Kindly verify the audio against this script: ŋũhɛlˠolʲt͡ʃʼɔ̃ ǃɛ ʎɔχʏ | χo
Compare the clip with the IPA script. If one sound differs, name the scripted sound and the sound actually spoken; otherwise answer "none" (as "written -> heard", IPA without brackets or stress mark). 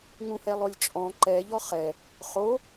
ʏ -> ɛ